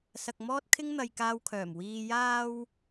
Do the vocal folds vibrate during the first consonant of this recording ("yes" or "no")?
no